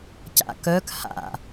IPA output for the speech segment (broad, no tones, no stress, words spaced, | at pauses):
ca̰kœk ha̰